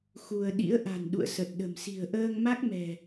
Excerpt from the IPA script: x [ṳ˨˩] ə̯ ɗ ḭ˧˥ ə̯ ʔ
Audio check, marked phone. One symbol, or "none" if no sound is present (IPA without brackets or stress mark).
u˧